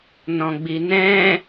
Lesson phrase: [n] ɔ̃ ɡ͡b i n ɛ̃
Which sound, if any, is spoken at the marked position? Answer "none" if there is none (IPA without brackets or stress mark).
n